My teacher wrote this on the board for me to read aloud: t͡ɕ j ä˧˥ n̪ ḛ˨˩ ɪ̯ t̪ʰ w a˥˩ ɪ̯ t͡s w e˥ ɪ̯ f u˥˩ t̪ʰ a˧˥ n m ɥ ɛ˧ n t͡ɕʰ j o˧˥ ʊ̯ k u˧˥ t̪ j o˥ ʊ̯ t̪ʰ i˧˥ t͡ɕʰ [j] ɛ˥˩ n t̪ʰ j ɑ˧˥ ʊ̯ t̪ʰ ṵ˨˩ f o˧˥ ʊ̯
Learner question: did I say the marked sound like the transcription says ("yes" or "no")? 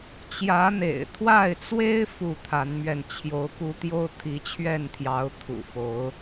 no